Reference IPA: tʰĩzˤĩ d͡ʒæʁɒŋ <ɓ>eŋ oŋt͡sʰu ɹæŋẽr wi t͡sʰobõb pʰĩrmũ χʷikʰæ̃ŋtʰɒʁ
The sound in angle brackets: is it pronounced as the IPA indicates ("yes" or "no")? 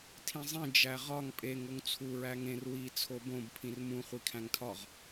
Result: no